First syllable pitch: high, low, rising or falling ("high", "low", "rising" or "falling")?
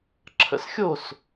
low